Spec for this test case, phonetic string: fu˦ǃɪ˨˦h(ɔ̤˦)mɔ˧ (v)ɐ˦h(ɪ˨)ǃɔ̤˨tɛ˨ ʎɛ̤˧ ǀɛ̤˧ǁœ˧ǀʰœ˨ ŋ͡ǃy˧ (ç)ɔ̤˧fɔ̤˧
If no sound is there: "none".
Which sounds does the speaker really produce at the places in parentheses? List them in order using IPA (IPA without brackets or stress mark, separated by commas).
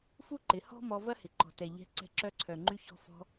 ɔ̤˦, v, ɪ˨, ç